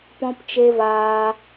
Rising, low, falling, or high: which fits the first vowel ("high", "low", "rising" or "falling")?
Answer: high